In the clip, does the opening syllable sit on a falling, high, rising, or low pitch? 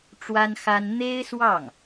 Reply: high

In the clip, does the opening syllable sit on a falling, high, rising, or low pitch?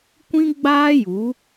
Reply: high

